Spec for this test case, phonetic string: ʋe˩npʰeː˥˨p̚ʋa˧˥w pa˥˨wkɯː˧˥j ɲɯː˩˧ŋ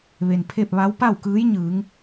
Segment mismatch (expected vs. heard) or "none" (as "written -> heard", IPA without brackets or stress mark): eː˥˨ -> e˥˨